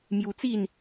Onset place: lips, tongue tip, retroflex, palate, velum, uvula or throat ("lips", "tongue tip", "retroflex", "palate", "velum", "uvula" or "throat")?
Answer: lips